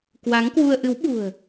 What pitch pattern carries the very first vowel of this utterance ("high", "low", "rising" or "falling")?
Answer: rising